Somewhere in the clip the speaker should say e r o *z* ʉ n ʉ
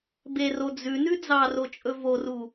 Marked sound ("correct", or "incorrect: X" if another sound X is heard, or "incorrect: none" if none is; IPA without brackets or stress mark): incorrect: d͡z